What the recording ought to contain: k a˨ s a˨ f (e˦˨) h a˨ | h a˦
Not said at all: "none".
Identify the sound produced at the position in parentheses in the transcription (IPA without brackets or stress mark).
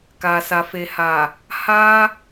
e˨